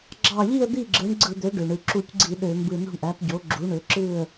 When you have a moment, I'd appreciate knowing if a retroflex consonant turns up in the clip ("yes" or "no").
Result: yes